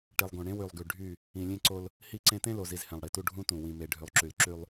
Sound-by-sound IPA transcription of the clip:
ʈ i˨ lˠ ɡ õ˨ ɳ ẽ˦ w y˨ lˠ ɡ y˨ ɖʱ y˦˨ | ĩ˨ lʲ ẽ˦ ǀ o˦ l | h i˦ ǀ ẽ˦ t ẽ˦ l o˨ z i˨ z h ẽ˨ lˠ ɽ i˨ t u˦ ɖʱ ũ˦ t ũ˨ w ĩ˨ m e˨ ɖʱ y˨ lˠ ǁ y˨ l ǁ y˦ lˠ

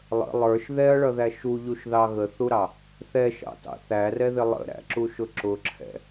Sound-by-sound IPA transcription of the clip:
lˠ ə̰ lˠ ə˞ ʃ ð ɛ ɐ̯ ɭ ʌ ð æ ʃ u ʎ u ʃ ð ɑ ɣ ə θ u ɾ ɑ | θ ɛ ʃ ɑ̰ t ɑ̰ θ æ r ɛ ð ɪ lˠ ə̰ ɾ æ̰ ǁ u ʃ ʊ ǁ ʊ ǁʰ ɛ̰

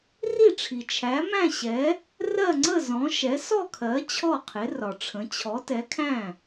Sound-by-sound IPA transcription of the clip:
r i˥˩ ʈ͡ʂʰ i˨ t͡ʃʰ æ˨˥ m æ̃˥˧ ɕ ɛ˨˥ | r ɜ˥˧ ŋ͡ǀ ə˥˧ z ɔ̃˨˥ ʃ ɛ˨˥ s ɔ˥˧ kʰ ɜ˨˥ t͡ɕʰ ɔ˥˩ qʰ ɪ˨˥ r ɒ˨ ʈ͡ʂʰ ə̃˨˥ t͡ɕʰ ɔ˨˥ t ɛ˨˥ kʰ æ̃˥˩

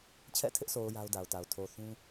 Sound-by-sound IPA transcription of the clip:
t͡ɕʰ ɛ̰˦˨ tʰ ɪ˦ ʔ sʰ o˨ ʊ̯ j a˦ ʊ̯ d a˨ ʊ̯ t a˨ ʊ̯ tʰ o˨ θ ũ˦

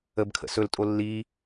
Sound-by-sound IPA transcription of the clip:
ə b kʰ ə̰ s ɵ l tʼ o lː i

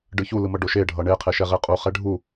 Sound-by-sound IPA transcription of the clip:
ɖ ɯ ç u l ɯ m ʌ ɖ o ʃ e ɖʱ ʌ ɳ e qʰ e ʃ ɛ ʁ e qʼ u χ ɛ ɖʱ u

